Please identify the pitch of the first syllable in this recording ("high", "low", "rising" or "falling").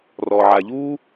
low